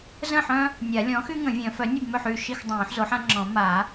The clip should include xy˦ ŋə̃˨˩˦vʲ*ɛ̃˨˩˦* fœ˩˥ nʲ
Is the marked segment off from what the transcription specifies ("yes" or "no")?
yes